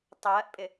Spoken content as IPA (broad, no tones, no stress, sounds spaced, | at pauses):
tˤ ɜː ʔ pʼ ɪ